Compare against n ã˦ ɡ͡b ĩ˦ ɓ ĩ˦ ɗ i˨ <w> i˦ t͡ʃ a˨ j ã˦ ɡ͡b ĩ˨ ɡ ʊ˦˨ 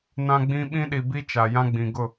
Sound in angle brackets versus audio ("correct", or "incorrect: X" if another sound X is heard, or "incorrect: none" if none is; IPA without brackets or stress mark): incorrect: b